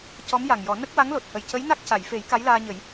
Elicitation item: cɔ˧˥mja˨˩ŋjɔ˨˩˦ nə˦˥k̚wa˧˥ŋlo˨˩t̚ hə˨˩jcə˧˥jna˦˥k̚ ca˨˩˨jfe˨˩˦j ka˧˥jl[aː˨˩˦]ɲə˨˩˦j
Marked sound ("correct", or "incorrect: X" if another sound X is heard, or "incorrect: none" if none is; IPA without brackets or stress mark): incorrect: aː˧